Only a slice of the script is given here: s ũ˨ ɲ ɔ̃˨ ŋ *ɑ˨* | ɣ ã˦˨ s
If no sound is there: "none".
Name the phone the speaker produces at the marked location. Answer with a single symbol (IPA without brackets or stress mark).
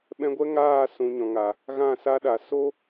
a˨